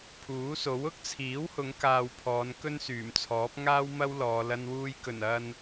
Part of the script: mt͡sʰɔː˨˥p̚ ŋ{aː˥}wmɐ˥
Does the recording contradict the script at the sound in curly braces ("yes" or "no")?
no